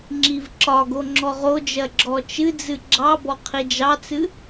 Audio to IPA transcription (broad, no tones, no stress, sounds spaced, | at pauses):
ŋ͡ǁ i v ǁ ɒ ɡ o ŋ͡ǁ ɔ ʁ o d͡ʒ ɜ ɡ͡ǁ ɔ t͡ʃ ɨ d͡z ɨ ɡ͡ǁ ɑ b ɔ qʰ i d͡ʒ ɑ t͡s ɨ